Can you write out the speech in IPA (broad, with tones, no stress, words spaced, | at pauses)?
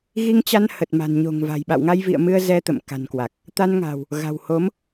ɣi˧ŋt͡ɕa˧n hə˨˩t̚ma̤˨˩n ɲo̤˨˩ŋva̤˨˩jɓa̰˧˨w ŋa˧jvḭ˧˨ə̯mɨ˧ə̯ zɛ˧t̪ə̰˧˨mka̤˨˩nkwa˨˩k̚ | t̪a˧nŋa̤˨˩w | ɣa̤˨˩who˨˦m